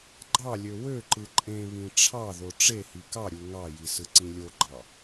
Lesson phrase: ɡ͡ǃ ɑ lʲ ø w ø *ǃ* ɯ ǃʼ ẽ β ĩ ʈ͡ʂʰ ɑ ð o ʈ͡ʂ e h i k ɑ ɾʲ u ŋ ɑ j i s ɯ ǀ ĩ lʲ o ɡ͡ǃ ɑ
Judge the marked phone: correct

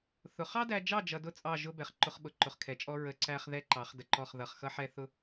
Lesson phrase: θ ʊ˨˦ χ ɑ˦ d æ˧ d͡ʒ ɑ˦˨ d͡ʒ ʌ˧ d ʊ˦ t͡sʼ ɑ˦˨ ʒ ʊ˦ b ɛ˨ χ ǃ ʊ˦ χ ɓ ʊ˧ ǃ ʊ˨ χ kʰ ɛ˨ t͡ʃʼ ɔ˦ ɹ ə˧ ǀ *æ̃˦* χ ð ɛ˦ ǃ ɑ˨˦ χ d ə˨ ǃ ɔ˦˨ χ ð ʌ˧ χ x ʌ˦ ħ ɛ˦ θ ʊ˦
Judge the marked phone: incorrect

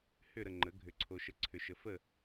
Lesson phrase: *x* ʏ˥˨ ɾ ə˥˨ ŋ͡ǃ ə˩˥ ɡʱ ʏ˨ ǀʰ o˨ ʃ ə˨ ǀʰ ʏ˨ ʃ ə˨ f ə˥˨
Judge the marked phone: incorrect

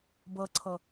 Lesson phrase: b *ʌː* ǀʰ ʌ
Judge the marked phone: incorrect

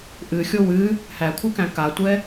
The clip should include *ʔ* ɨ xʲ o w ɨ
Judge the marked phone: correct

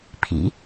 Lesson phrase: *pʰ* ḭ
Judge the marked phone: correct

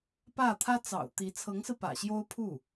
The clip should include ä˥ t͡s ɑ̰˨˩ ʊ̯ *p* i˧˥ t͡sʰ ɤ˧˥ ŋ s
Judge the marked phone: incorrect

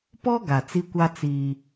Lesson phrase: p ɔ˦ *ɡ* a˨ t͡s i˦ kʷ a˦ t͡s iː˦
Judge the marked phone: correct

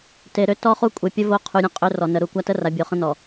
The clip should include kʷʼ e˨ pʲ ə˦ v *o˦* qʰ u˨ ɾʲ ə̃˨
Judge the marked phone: correct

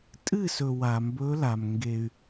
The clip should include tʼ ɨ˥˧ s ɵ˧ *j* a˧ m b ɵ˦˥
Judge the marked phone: incorrect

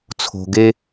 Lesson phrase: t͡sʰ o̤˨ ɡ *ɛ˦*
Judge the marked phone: incorrect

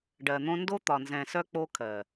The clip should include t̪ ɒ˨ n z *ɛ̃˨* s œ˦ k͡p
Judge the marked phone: correct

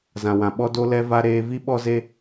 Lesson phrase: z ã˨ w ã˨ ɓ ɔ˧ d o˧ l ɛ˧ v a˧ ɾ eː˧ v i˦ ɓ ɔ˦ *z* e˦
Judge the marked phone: correct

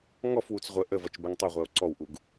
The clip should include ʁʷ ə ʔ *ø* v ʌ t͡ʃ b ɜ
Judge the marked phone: incorrect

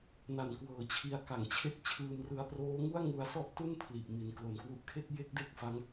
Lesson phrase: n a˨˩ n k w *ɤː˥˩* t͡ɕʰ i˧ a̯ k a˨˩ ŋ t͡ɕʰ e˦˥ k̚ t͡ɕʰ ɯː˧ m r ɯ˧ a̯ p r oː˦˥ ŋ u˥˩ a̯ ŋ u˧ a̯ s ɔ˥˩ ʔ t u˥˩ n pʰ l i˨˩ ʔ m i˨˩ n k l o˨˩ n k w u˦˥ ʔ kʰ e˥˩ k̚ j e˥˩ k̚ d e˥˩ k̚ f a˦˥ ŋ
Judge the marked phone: incorrect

